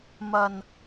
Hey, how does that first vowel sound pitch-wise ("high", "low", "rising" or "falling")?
low